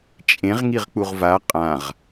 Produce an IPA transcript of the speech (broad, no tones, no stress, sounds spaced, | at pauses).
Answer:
t͡ʃʼ ẽ ʁ ŋ i ʁ k͡p u ʁ v a qʼ ã ʁ